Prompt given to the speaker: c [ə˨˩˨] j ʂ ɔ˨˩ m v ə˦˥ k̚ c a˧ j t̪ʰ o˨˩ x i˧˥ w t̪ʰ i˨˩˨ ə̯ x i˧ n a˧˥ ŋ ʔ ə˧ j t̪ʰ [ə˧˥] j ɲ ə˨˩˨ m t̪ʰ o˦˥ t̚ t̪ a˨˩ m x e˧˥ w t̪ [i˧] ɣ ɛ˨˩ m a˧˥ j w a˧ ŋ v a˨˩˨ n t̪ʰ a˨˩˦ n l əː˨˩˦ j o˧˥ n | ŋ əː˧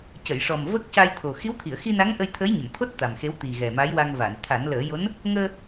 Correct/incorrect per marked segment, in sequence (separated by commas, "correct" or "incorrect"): correct, correct, incorrect